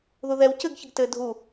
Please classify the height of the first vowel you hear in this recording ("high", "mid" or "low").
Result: high